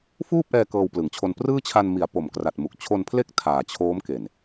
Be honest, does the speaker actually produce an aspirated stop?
yes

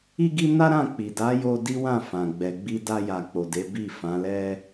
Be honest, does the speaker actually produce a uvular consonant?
no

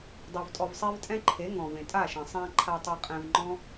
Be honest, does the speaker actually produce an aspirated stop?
yes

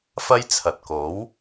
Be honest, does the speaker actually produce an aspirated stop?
yes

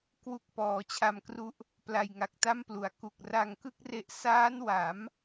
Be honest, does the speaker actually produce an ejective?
no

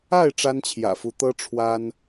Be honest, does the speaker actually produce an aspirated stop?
yes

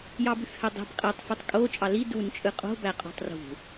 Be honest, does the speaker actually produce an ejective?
yes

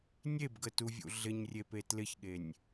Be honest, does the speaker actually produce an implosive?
yes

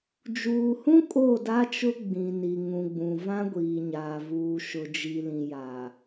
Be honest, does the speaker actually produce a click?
no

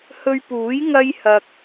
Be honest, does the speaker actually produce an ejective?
no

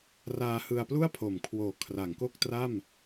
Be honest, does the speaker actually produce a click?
no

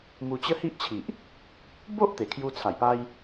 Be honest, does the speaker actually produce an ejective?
no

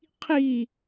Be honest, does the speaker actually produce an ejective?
no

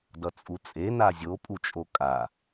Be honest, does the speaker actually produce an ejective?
yes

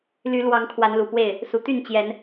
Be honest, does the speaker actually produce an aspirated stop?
yes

